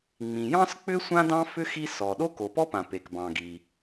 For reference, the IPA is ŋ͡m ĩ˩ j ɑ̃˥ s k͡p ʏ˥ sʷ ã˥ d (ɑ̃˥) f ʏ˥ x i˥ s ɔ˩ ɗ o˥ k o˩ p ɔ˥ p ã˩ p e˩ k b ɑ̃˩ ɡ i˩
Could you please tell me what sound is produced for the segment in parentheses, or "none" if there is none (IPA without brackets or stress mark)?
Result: ɑ̃˥